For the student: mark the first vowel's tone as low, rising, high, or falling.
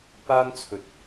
high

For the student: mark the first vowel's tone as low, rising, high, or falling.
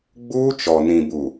high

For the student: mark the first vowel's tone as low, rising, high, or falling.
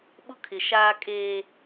high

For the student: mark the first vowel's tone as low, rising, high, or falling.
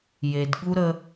low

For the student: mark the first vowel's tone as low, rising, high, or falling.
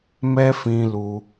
high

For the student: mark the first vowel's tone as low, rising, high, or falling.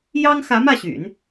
high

